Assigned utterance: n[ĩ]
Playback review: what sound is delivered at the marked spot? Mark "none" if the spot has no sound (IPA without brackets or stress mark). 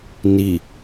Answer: i